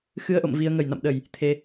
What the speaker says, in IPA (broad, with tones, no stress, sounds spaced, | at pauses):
x ɨ˧ ə̯ ʔ o̰˧˨ m v i˧ ə̯ ŋ ə˧˩ j n a̰˧˨ m ɗ ə˧˩˨ j | t̪ʰ e˧